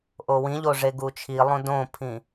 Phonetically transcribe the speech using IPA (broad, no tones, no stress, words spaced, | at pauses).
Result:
ʔowĩʎo ʐeɡut͡ʃʰilˠõ dõpʰĩ